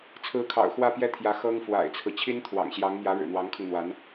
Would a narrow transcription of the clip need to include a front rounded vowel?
no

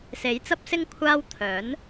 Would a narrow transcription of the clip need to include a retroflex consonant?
no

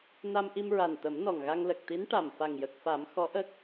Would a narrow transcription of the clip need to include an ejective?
no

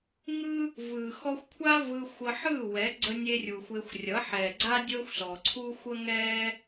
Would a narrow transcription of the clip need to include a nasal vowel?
no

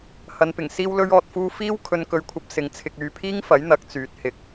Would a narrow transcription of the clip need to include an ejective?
no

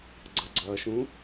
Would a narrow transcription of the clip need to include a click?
yes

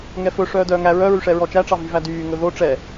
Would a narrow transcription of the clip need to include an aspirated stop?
no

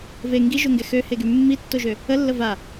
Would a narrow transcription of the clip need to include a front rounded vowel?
yes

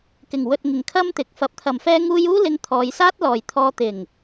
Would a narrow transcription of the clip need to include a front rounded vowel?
no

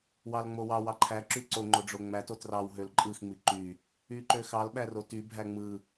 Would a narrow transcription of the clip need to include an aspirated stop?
yes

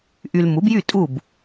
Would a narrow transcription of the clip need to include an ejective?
yes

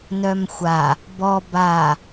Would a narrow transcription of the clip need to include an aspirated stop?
no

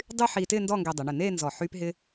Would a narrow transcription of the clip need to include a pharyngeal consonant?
yes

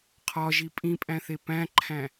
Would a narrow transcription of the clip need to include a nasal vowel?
yes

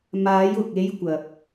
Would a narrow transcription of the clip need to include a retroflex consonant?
no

